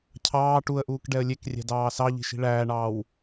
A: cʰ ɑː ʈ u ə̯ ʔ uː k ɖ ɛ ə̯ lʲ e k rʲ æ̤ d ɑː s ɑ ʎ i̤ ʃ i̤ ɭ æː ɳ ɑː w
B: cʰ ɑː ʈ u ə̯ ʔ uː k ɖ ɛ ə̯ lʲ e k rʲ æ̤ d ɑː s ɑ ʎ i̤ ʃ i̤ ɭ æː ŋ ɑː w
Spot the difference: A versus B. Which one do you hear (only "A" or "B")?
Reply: A